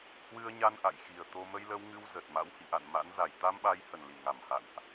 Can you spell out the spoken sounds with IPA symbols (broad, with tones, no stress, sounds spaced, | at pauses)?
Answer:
h w ɨ˧ ə̯ ɲ a˧ n ʔ a̰˧˨ j x i˨˩ ə̯ t̪ o˧ m ə˧ j l ə˧ w ŋ ɨ˧ w z ə˨˩ t̚ m a̰˧˥ w h ḭ˧˨ ʔ a̰˧˨ n m a̰˧˥ n z a˧˩ j t̪ a˧ m ɓ a˨˦ j h ə˨˩ n l i˧˩ ŋ a˧˩ m h a̰˧˨ n ʔ